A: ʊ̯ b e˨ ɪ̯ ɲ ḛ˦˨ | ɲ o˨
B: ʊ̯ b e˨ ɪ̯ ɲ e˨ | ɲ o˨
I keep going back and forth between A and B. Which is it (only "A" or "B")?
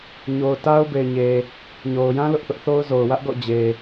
B